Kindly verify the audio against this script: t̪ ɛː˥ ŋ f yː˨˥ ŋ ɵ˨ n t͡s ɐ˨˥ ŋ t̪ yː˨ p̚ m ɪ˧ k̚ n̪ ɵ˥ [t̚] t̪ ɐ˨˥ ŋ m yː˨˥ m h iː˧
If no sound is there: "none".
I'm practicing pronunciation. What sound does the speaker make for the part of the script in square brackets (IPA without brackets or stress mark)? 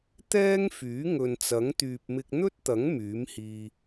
t̚